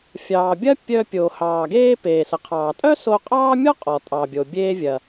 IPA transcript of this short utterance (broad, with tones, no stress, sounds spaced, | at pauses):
fʲ ɑː˩ bʲ ɐ˥ pʲ œ˧ pʲ o˩ h ɑː˩ ɡ eː˧ p eː˩ s ə˩ qʰ ɑː˩ tʼ œ˥ s o˧ qʼ ɑː˥ mʲ ɔ˥ qʼ ɔ˩ tʼ ɑ˩ bʲ o˩ bʲ eː˧ vʲ ɐ˩